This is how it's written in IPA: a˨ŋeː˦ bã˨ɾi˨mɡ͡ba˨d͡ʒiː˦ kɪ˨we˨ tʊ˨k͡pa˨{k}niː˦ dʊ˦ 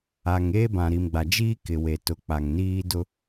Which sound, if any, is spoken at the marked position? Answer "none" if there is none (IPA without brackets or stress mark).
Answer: ŋ